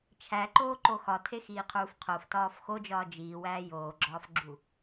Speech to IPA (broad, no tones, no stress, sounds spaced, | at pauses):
t͡ʃʰ æ ǃ oː ǃ o x ɒ tʰ e x iː qʰ uː f qʰ o f t ɒː f x o d͡ʒ ɒː d͡ʒ iː w æː j oː ɡ͡ǁ ɒː f ɡ͡ǁ u